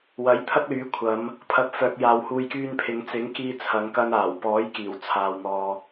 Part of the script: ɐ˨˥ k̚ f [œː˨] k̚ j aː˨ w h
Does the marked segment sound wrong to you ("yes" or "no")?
no